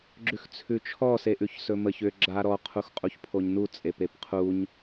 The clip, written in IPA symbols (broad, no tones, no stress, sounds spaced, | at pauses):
ɡ͡ǁ ʉ x t͡sʰ ʉ t͡ʃʰ ɔ s e ʔ ʉ ç s ɵ m ə ç ʏ ɡ͡ǁ a ɾ ɔ qʰ u x qʼ u ç pʰ o ɲ n u t͡sʼ e p e p qʰ u ɲ